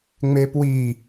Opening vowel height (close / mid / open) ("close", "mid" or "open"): mid